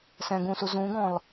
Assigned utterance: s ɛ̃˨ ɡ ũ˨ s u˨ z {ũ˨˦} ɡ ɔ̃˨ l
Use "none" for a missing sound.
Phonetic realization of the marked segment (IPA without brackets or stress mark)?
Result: ũ˨˦